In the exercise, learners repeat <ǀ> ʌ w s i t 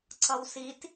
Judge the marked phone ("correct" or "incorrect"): correct